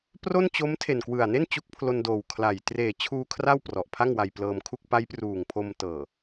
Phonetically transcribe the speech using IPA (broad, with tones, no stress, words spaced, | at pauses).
pro˥˩nt͡ɕo˦˥m tʰe˨˩nkwɯ˨˩a̯ne˥˩n t͡ɕu˦˥k̚pʰlo˧ndoː˨˩w kʰla˨˩j treː˨˩t͡ɕʰuː˧ kʰra˥˩wprɔ˨˩ʔ pʰa˥˩ŋwa˧jplɤː˧m kʰu˥˩k̚ pa˦˥j pruː˨˩ŋpʰo˧m tɤː˨˩